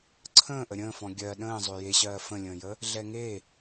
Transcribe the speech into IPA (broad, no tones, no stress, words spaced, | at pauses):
ǀʰə̃ːʔə ɾʲə̃ːfɔ̃ ɡʲɜ ɗə̃ː zˤøjeɕɜː fə̃lʲə̃ːjə | ɮɛŋe